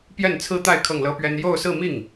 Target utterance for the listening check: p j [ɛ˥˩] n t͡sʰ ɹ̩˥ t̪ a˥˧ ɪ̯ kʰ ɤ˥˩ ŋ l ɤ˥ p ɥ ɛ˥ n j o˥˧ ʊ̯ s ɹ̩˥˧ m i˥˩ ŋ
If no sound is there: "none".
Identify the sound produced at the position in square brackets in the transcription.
ɛ˥˩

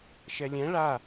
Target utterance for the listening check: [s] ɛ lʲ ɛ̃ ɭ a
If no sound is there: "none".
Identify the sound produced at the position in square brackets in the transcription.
ʃ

